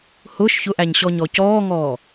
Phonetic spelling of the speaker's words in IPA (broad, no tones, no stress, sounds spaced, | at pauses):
h ʊː ʃ ç ʊ ʔ æ ɲ ɕ ɔ ɲ ɔ c ɔː ŋ ɔː